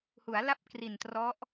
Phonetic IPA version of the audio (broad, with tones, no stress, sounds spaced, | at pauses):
h u˩˦ a̯ l a˦˥ p̚ k r i˨˩ n t r ɔ˦˥ ʔ